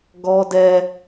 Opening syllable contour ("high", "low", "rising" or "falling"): high